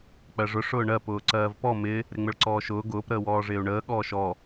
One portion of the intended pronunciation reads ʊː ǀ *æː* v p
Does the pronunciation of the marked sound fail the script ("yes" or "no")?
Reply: yes